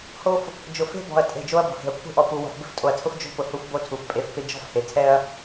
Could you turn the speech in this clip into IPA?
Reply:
ho˦f | d͡ʒʊ˨fe̤˦bɔ̤˨ɐ̯ tʼe̤˦˨d͡ʒo˦ɐ̯ bɔ̤˨he̤˨ɐ̯kʷʰe̤˦ʔɔ˨ pu˨ wɔ̤˨fbɪ˦ftʼo˨ɐ̯tʰʊ˦f d͡ʒo̤˦pʊ˨ hu˦fbo˦tʰu˨f pʼe˨f pɪ˦ d͡ʒɔ̤˦fhe˨ tʰɛ˦ɐ̯

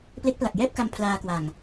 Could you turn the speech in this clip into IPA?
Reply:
ple˦˥k̚pla˨˩k̚jɛː˥˩p̚ka˧m pʰlaː˧kwa˨˩ŋ

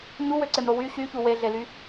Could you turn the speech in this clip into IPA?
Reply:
ɲuwøǀemɾo wy ɕyçu weɮely

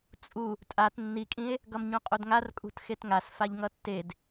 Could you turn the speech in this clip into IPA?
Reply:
t͡sʼu | tʼat nːikʼĩe̯ | ɡʌmɲõqʼodŋar kʼṳtxetŋas faʎŋʌtːed

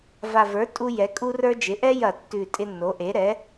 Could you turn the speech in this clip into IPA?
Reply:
va˨˩və˞˩˥tʼu˧ jɛ˩˥kʼu˥ rə˞˥ d͡ʒɪ˩˥ʔɛ˥jɐ˧˩˧ tːʉ˨˩tʼɪ˧ nːo˩˥ʔe˩˥ ɾɛ˩˥

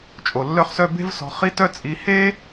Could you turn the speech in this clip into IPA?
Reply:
t͡ʃʼo˩lːœ˧χsœ˧ be̤˥vsɔ̤˧ χi˧ tœ˥t͡sʼi˧ he˥

